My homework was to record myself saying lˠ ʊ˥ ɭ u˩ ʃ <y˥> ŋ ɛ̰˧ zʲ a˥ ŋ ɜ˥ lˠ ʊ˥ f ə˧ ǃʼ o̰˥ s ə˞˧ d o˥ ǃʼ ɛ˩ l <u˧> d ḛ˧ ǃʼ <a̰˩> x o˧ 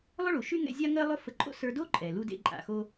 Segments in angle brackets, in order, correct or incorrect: correct, correct, correct

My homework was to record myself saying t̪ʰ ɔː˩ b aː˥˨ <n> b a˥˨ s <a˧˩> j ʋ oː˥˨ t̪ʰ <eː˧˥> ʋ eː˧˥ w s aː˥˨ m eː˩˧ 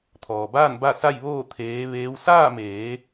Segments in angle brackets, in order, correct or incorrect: correct, incorrect: a˥˨, correct

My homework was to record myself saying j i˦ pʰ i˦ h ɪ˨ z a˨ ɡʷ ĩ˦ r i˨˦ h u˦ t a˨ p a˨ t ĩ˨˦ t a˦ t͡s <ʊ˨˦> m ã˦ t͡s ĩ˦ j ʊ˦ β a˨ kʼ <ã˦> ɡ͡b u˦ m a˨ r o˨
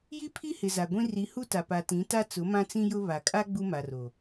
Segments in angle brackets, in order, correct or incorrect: correct, incorrect: a˦

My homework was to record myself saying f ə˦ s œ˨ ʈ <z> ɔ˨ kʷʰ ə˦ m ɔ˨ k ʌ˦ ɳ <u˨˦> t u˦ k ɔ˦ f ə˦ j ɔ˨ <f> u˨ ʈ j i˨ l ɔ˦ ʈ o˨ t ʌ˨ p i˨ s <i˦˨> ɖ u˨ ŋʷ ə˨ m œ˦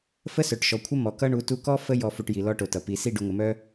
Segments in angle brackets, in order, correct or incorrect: incorrect: ʃ, correct, correct, correct

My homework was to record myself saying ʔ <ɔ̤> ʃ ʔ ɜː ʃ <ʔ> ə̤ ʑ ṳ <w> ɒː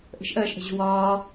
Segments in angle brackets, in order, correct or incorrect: incorrect: ə̤, correct, correct

